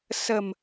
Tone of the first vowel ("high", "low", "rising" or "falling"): low